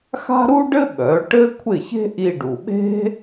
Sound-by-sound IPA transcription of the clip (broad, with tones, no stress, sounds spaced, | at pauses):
x a̤˥ ɾ u˥ ɖ ɘ˥ ɓ œ˩˥ ʈ ɘ˥ kʷʰ ɪ˥˩ ç e̤˥ ʔ i˧ ɖ u˩ ɓ e̤˥